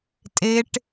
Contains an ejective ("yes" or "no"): yes